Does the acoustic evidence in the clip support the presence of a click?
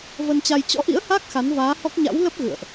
no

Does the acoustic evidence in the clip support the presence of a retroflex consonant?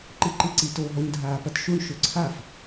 yes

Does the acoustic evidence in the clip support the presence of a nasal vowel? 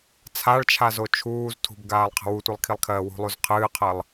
no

